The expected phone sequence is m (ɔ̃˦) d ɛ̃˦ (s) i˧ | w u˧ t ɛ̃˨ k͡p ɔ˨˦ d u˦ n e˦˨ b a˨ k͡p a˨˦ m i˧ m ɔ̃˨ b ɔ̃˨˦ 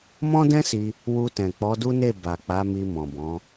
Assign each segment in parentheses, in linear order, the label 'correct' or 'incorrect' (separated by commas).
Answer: correct, correct